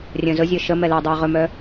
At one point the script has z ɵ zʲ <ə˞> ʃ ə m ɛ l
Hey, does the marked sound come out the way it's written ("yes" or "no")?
yes